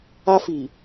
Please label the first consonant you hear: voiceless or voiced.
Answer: voiceless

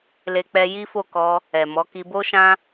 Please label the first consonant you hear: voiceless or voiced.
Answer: voiced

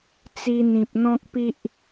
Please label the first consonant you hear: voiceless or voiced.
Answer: voiceless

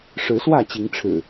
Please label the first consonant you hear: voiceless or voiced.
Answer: voiceless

